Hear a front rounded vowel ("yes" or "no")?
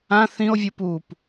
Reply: no